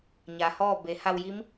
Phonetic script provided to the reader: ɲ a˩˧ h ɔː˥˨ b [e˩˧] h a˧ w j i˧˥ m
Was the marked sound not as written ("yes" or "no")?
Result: no